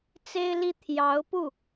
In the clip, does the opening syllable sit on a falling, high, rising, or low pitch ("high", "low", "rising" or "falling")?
high